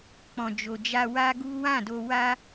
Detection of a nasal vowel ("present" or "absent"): present